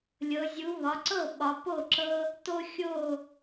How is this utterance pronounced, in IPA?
lʲ ɤ˩˧ zʲ u˩˧ β ɒ˩˧ ǀ ɤ˥˩ ɓ ɒ˩˧ p o˥˩ ǁ ɤ˦ | t o˦ xʲ o˥˩

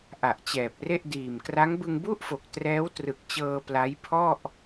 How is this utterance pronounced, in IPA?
ʔ a˨˩ ʔ t͡ɕ ɛː˨˩ p̚ r e˥˩ ʔ d iː˨˩ m k r a˦˥ ŋ b ɯ˧ ŋ b u˥˩ ʔ f o˨˩ k̚ t r ɛː˦˥ w t r ɯ˨˩ k̚ t͡ɕ ɤː˧ p l a˦˥ j pʰ ɔ˥˩ ʔ

